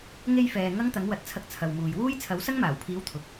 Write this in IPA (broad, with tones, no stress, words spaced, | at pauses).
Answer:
ŋe˧jfɛː˨ ŋɐ˥ŋt̪ɐ˨˥ŋwɐ˨˥t̚t͡sʰɐ˧k̚ t͡sʰɐ˨wmuː˨j wuː˥jt͡sʰɐ˨˥w sɐ˥ŋmaː˨˩wpʰiː˨˥w t̪ʰʊ˨˥k̚